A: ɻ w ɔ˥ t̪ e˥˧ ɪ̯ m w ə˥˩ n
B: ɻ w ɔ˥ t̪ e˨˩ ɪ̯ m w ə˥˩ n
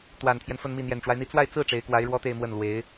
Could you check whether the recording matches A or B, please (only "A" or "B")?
A